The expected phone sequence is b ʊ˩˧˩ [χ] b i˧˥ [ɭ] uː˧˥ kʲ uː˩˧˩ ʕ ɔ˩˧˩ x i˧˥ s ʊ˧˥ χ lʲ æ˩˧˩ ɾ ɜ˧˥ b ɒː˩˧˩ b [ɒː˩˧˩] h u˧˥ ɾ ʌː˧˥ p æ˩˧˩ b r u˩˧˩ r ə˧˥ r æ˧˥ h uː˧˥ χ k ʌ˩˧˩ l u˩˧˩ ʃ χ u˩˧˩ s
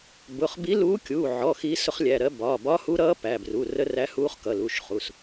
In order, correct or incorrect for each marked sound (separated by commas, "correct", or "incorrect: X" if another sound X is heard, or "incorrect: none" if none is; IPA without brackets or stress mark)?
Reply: correct, incorrect: l, incorrect: ɒː˧˥